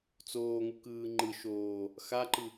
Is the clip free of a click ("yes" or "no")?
no